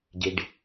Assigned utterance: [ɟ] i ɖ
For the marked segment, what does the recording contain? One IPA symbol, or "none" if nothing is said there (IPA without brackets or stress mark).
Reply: ɟ